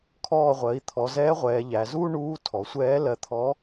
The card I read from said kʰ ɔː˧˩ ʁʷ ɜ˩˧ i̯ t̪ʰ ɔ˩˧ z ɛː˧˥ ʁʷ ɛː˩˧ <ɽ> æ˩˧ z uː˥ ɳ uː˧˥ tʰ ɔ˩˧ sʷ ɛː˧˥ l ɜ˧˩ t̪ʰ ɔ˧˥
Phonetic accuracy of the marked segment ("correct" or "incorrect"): incorrect